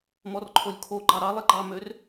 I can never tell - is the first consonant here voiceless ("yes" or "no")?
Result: no